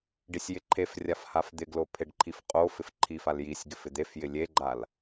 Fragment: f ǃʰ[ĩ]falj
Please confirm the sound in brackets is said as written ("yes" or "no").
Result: no